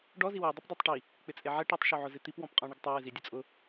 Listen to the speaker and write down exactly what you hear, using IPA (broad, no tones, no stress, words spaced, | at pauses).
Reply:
ɖɔ ziwe dˤʊpdˤatˤʈi | k͡pɪt͡sʼeʕɛ ʈɛtˤʃu ʕʊzɪt̪ip wɔ̃pqʼɔ̃ɳɪɡtˤe wɪzidʲʊt͡sʼʊ